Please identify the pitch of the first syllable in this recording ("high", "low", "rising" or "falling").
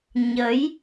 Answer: rising